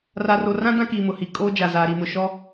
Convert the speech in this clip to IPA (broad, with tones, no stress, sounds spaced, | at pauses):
r a˨ r o˨ r ã˦ d ã˦ k iː˨ m ʊ˨ h i˨ kʼ oː˦ d͡ʒ a˨ z aː˨ ɾ i˨ m ʊ˨ ʃ ɔ˦